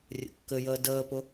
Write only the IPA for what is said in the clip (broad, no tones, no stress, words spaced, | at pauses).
rʲə̰kːɘjəː dəːpʊ